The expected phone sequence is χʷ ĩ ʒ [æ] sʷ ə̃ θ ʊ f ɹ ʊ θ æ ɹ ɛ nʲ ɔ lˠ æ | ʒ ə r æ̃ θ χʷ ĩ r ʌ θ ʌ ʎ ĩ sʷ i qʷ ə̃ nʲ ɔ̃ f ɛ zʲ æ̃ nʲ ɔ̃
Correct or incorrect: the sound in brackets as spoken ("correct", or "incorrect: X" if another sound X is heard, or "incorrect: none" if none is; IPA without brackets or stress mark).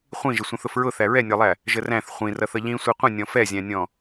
incorrect: ə